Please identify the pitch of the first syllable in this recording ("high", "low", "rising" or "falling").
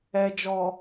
low